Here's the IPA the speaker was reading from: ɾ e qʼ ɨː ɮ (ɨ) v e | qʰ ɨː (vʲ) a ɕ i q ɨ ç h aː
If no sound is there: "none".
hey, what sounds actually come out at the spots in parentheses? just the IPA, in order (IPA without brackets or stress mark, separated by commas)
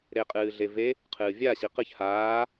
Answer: e, vʲ